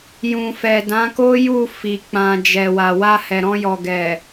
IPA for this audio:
j ũ˨ f ɛ˨ d ã˨˦ k o˦ j u˦˨ f i˨ k͡p ã˨ d͡ʒ ɛ˨ w a˨ w a˧ h ɛ˨ ɾ ɔ̃˧ j ɔ˨ ɡ ɛ˨

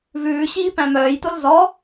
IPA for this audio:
v ʉː ɕ iː p æ̃ m œː j t o l z ɔ

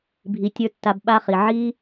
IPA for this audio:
bʱ i˧ tʲ ə˞˦ tː a˧ b ɓ a˦ χ i˨ ʕ i˦

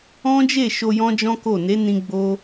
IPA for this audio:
ɔ̃˦ d͡ʒ e˦˨ ʃ o˧ j ɔ̃˦ d͡ʒ ɔ̃˦ k o˦˨ n e˨˦ n ĩ˧ ɡ͡b o˦

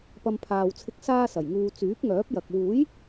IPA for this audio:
p ɐ˧ m pʰ aː˨ w t͡sʰ ɪ˧ k̚ s aː˥ s ɐ˨˩ j ŋ uː˧ t͡s yː˨˥ p̚ ŋ œː˨˥ p̚ j ɐ˨ k̚ w uː˨˥ j

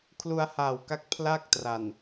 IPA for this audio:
kʰ l u˧ a̯ h aː˨˩ w k a˦˥ k̚ pʰ l a˥˩ k̚ t r a˨˩ n

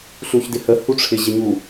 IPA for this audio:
ɬ u ç d ɪ h ə h u ʈ͡ʂʰ ɪ ʑ ɪ ɲ u

